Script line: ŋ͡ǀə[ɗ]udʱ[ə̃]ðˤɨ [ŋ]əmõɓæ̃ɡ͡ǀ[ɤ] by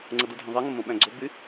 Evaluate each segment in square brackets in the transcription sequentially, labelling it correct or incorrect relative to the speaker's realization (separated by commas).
incorrect, correct, correct, incorrect